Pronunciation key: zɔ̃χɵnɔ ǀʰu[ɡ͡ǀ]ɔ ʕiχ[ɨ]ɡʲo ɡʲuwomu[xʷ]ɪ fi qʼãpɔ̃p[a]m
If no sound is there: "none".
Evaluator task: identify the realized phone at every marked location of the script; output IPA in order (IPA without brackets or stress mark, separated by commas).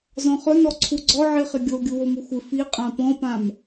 ɡ͡ǀ, ɪ, xʷ, ã